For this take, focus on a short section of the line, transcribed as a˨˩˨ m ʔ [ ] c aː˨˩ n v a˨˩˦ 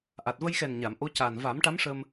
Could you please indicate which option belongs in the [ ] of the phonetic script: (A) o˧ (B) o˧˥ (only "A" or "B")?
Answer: B